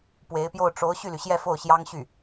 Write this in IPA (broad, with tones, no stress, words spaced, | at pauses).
pwe˧˥ɪ̯pjo˥˩ʊ̯ ʈ͡ʂo˧˥ʊ̯ ɕy˥˩ly˩ɕjɛ˥˧ fo˥˩ʊ̯ɕjɑ˥ŋɕy˥˩